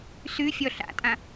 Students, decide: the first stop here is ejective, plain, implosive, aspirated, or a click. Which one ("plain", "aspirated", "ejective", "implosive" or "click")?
ejective